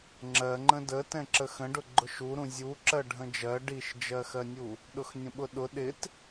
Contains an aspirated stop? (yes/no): no